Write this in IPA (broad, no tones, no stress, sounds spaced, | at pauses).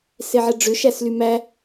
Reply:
s e ʕ ɛ ɖ͡ʐ ʏ ʃ æ s l y m æ